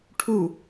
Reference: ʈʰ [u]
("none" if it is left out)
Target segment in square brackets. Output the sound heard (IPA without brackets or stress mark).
u